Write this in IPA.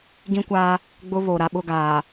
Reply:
ɡĩ˦kʷaː˦ | ɡ͡bʊ˦ βo˨ ɾa˨ɓʊ˦˨ ɡaː˨

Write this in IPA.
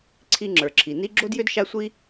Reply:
ǀʰi˦ŋ͡ǁə˞˨ǁʰi˨ ni˦ɡ͡ǁo˥djʏ˥d ʃa˦sʷi˦

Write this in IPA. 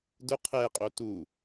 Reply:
dʊ qʰɛqʼo tu

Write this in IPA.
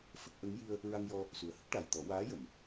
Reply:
fə˦˥k̚ʔə˧˥ŋ ji˧ə̯ | ɹa˧ŋjɔ˧ | su˨˩ə̯hə˦˥k̚ʈa˨˩j t̪ɔ˨˩˦ waː˧˥jə˨˩˨m

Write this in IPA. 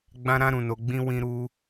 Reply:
ɡ͡bã˧ ɾã˧ɾũ˨no˨ɡ͡bĩ˧ wĩ˧ɾu˧

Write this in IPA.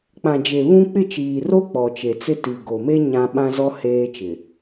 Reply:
k͡pã˨d͡ʒe˨ βũ˦ k͡pɪ˦˨t͡ʃiː˨ro˦ k͡pɔ˨t͡ʃe˨t͡sɪ˦ ti˨ɡo˨me˦ ɲã˦ ɓã˦zɔ˦ heː˦t͡ʃɪ˨

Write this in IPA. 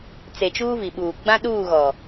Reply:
t͡se˨t͡ʃuː˦vi˨ɓuː˨ ɡ͡bã˦ɗuː˦˨ɣɔ˨

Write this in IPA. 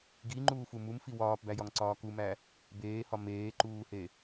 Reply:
ɡiŋ͡ǃuːfu mumfi wɒːpbæjɒŋǀɒː kumæ | beːhɒ meːǃuːhe

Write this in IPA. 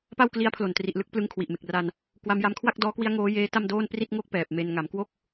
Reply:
pa˥˩wkli˦˥a̯ pʰlo˨˩n tri˨˩ʔlɯ˥˩k̚ plɯ˧ŋkʰwi˨˩ʔme˨˩k̚ra˧n | kwa˧mja˧m kʰwa˥˩k̚ dɔː˦˥kwi˦˥a̯ ŋoː˦˥jeː˦˥ ta˥˩mdoː˥˩n pri˥˩t̚ŋo˥˩k̚ pɛː˨˩p̚me˧n ŋa˩˦mkwo˦˥k̚

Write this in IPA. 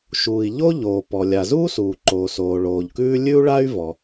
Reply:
ʃuː˩i̯ ʎo˥ʎoː˩ pɔ˩lʲa˩ zuː˥suː˩ǃoː˩soː˩ ɭoː˩ʎkʉː˥ lʲʉ˥u̯ɭa˥y̯ vɔ˩

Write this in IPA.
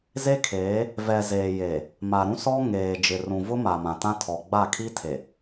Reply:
ze˦kʰeː˨˦ | vɛ˨zeː˨je˨ | ma˨ɾũ˦sɔ˦ ŋeː˨d͡ʒɪ˨rũ˨ vʊ˦ma˨ mã˨tã˦tʰɔ˨ ɡ͡ba˦˨kʰi˦tʰe˨

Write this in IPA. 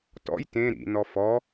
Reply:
tɔ̰j tẽ ɾḭnɔ fɔ

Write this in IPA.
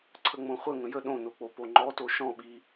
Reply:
ǀʰəŋ͡mõχʷə ŋə̃jə ɗõnok͡po poŋ͡ǃɔto ʃɔ̃ɓi

